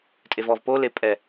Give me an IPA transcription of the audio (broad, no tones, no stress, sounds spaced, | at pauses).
tʼ e v ɔ v p o l e pʼ ɛ